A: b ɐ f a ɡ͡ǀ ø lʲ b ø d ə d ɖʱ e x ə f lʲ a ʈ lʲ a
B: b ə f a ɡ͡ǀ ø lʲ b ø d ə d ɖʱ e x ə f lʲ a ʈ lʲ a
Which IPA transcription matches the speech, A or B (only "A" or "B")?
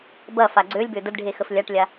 A